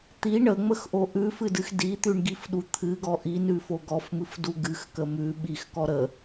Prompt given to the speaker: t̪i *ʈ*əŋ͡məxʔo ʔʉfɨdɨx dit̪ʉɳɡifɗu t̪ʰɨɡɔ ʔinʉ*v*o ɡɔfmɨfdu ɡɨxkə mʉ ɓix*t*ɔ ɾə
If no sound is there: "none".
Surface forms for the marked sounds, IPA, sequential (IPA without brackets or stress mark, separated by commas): ɳ, f, k